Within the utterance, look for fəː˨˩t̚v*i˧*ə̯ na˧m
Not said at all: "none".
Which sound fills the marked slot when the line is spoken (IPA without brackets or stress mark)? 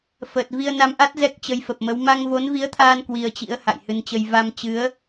i˧